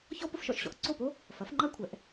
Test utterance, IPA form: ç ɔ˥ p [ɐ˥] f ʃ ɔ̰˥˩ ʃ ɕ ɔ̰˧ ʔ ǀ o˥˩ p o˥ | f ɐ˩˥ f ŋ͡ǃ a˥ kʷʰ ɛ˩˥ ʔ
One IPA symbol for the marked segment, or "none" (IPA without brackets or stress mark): ə˥